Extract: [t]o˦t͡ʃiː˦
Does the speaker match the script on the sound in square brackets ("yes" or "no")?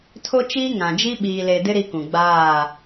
no